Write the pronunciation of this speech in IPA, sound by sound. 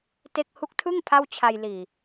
te˥˩k̚ hu˦˥k̚tʰɯ˥˩ŋ pʰa˥˩wt͡ɕʰa˧j liː˨˩

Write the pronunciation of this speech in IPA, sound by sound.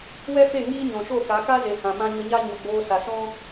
wɛ˦fe˦˨ ŋiː˦ɲɔ̃˨ʃo˦˨ka˨˦ ka˦ze˨ hã˨mã˦ ɲə˧ɲa˦ ɲo˨ɡ͡boː˧sa˨sɔ̃˦

